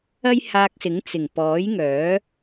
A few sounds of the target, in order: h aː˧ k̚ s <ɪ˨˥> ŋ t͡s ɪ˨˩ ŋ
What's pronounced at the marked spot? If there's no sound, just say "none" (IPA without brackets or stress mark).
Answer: ɪ˨˥